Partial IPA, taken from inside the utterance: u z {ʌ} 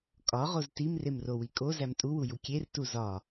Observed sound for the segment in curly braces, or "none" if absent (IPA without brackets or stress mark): ɒ